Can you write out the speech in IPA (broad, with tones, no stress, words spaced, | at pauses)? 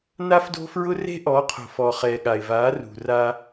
na˦fdo̤˦fɹʊ˦ re̤˦ʔɔ˨˦qʰo̤˨fɔ˨ χɛ˨ɠa˨ɪ̯va˨˦rṳ˨ ra˦